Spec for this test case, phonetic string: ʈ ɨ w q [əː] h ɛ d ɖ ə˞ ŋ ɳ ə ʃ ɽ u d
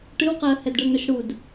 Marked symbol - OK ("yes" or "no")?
yes